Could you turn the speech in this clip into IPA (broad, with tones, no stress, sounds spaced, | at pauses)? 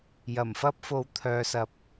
j ɐ˨˩ m f ɐ˥ p̚ f o˨˥ w t̪ʰ œː˨˧ s ɐ˨ p̚